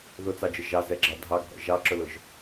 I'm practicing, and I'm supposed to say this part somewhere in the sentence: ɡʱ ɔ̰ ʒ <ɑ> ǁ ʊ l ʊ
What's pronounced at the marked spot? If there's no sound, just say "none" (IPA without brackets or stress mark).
ɑ